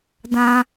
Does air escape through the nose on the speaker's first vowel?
yes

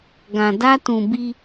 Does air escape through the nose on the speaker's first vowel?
yes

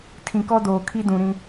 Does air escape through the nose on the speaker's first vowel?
yes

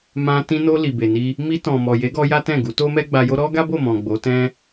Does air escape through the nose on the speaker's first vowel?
yes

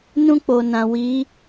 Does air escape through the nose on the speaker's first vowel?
yes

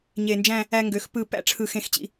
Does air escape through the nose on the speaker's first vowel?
no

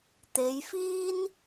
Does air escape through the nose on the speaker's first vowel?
no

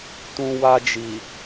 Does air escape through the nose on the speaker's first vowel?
yes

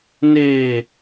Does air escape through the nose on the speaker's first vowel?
no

